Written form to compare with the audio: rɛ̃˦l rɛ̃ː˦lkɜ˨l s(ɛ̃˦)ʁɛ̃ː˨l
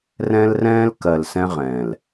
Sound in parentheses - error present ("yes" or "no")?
no